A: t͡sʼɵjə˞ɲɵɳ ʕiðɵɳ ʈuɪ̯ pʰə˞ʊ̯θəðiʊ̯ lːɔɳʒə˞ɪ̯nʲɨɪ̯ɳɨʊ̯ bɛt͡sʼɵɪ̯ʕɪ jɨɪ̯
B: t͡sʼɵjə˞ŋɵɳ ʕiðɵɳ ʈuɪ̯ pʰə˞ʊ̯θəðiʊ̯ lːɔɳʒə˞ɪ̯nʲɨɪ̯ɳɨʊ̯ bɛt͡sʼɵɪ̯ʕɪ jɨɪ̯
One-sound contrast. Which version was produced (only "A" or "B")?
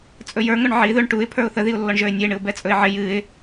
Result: B